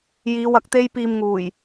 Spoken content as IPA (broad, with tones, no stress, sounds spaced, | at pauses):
j iː˨˧ w ɐ˧ k̚ t̪ e˥ j p iː˧ m ŋ uː˨˩ j